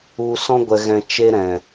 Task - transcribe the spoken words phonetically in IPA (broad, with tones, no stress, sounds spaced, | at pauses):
u˧ s ɔ̃˧ ɡʷ ɛ˨ ɣ ɛ̃˨ t͡ʃ e˧ ɾ ɛ̃˨